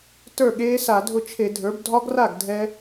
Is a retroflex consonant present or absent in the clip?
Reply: absent